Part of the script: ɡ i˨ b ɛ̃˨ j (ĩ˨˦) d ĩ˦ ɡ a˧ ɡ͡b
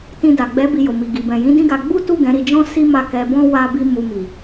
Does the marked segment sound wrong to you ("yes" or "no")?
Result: no